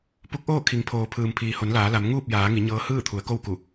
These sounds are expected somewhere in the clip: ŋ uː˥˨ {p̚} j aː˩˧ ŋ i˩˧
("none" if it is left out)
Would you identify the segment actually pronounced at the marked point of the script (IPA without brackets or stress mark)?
p̚